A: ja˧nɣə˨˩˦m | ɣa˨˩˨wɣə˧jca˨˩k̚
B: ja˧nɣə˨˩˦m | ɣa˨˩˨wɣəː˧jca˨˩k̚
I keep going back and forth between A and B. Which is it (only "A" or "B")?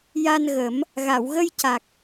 A